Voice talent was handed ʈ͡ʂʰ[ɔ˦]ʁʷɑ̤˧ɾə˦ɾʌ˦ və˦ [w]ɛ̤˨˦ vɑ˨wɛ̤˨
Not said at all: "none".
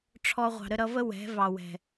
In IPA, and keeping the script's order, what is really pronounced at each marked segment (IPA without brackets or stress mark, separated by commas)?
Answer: ɔ˦, w